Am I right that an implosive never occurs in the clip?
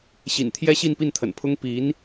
yes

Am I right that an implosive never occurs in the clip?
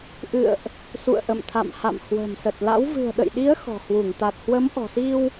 no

